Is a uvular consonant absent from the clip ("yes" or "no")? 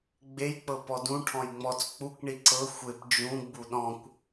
yes